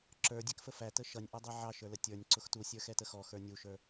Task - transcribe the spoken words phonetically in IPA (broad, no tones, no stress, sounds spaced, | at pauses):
ǁ ə˞ dʲ ɛ k f ə f æ t ə ʃ ʌ nʲ ʔ ʌ dˤ ɛ ʕ ɑ ʃ ə˞ l ə tʲ ə˞ nʲ ǀ ʊ x t u sʲ ə˞ x ɛ t ə x ɔ x ə˞ nʲ u ʃ ə˞